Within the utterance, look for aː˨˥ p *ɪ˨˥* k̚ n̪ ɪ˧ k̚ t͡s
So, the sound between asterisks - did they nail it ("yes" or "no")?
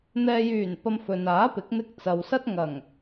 yes